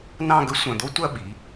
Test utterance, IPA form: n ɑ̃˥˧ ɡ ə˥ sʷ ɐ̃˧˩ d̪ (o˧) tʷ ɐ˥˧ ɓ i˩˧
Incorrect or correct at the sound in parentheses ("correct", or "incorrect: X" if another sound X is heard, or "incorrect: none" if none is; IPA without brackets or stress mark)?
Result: incorrect: o˥